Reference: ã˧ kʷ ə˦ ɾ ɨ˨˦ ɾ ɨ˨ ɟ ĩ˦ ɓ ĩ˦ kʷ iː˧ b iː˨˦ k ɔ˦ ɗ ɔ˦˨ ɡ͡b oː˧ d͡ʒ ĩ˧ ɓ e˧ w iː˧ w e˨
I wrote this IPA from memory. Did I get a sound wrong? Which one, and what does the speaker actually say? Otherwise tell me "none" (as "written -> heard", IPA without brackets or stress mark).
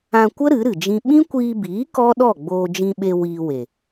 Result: ɟ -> d͡ʒ